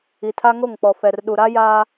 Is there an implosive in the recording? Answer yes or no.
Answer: yes